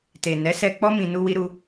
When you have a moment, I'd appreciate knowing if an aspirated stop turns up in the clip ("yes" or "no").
no